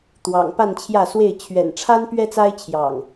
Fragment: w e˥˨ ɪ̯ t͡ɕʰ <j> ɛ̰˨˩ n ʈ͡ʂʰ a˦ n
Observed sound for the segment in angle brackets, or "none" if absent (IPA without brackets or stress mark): ɥ